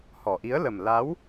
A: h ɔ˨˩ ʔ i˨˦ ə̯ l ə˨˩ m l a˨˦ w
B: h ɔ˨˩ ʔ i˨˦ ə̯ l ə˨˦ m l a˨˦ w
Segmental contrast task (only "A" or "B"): A